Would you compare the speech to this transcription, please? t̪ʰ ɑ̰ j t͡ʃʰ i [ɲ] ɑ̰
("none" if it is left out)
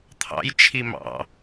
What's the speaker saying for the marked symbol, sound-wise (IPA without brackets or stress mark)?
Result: m